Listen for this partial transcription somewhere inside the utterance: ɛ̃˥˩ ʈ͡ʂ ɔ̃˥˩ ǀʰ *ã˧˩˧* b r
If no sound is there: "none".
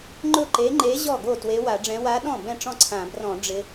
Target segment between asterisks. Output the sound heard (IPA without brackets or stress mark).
ã˧˩˧